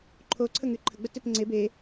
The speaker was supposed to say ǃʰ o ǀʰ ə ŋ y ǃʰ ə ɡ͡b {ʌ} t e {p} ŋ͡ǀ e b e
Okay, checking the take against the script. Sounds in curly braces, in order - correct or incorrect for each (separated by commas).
incorrect, correct